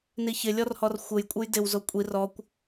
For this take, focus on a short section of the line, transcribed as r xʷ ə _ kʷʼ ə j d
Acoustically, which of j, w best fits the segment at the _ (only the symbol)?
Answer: j